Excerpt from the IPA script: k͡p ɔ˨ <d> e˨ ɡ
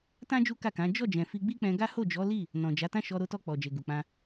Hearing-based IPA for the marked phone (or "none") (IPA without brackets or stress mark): d͡ʒ